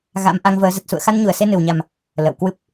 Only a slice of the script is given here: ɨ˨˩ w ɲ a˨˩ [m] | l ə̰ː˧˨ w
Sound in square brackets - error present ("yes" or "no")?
no